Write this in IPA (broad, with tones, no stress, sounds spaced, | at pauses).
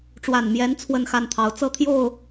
ʈ͡ʂ w a˨˩ n m j ɛ˨˦ n t͡sʰ w ə˥˨ n x a˥˨ n t̪ʰ ɑ˨˦ ʊ̯ t͡s ɤ˥˨ t̪ʰ j o˥˨ ʊ̯